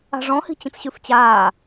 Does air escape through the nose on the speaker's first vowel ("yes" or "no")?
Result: no